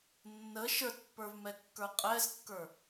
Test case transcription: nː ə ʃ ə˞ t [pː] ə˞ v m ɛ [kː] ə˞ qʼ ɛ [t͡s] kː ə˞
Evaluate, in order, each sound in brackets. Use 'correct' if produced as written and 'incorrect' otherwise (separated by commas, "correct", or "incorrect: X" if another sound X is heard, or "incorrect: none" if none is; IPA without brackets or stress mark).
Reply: correct, correct, incorrect: z